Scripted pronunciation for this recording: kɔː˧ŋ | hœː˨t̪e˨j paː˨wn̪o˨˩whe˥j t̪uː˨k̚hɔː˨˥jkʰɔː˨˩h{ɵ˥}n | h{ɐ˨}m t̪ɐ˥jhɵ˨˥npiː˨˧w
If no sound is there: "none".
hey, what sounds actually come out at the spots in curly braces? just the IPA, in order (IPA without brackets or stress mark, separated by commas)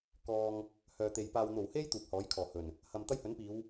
ɵ˨˩, ɐ˨